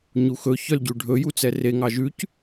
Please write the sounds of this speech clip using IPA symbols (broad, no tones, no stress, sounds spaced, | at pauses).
ɲ u x ɵ ç œ l ɟ ʉ ɖʱ ɵ j u t͡s ɛ r e ŋ ɑ ʒ ʉ c